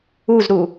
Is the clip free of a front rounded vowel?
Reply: yes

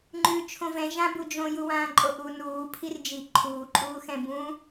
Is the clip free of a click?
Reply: no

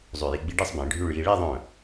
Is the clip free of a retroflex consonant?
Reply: no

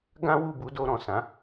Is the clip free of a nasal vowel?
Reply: no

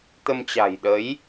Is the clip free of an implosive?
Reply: no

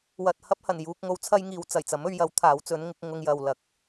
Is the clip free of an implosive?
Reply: yes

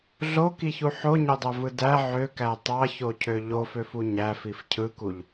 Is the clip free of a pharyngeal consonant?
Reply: no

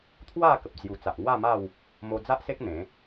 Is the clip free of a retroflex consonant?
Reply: yes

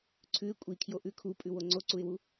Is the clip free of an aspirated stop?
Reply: no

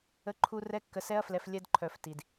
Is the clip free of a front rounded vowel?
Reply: no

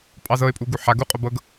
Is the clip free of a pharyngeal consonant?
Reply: no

